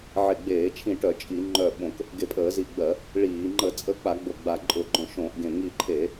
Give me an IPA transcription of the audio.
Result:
ʕe˧˩ɡ͡beː˧˩˧t͡ʃʰĩ˧˩ʈœ˧˩˧ t͡ʃʼi˧˩˧ŋ͡ǃœ˧˩ ɓõ˧˩˧k | ɡe˧˩pʼəː˧˩˧zi˧˩ɡ͡bɜ˧˩˧ | ɭiː˧˩˧ ŋ͡ǃə˧˩˧t͡sʼə˧˩ k͡pa˧˩˧ɡ͡bo˧˩ ɡ͡ba˧˩ ǃʼʊ˧˩˧ɡ͡ǃœ̃˧˩ ʃõ˧˩˧ʔɡẽ˧˩ ŋi˧˩ǃʰe˧˩˧

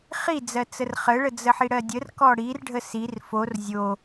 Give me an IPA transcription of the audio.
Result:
χid͡zɜ t͡sərχəɭə d͡zəħiɽɜdʲər kɔɽirɖʱə sir for zʲo

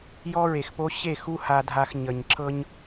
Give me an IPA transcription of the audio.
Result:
jɔ˦ɹe˨xpo˦ ɕe˦˨xu˦ ha˧dʱa˧xɲə˨ɲǁɤ˦ɲ

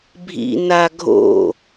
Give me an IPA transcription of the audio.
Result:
bʱḭ naɡʱo̰

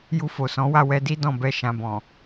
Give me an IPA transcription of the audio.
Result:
ju˧fo˨sɔ̃˨˦wa˦˨ wɛ˧di˦dɔ̃˦˨bɛ˧ ʃã˨bɔ̃˨

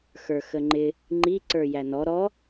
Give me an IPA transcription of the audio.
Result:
xə˞xəŋ͡ǃɪ | ŋ͡ǃi ǀə˞jænɔ ɾɔ

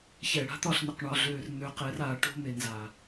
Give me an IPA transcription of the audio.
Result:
çɛ˨ɽa̤˦t̪ɒ˦˨ɬn̪ɘ˨q ɳɒ˨ɮøː˨rn̪ø˨ qɛ˨˦r aː˨ʈo̤˦me˨ nza˨

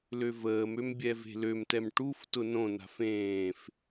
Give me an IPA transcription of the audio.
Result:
løvəːmøm bʲɛve̤lømtɛm ʈuf tʊnõna̤f ẽːf

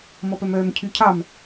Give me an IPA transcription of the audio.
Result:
mɔpœmœːmcʰy cʰɑm

